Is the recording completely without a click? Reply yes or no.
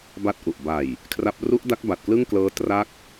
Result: yes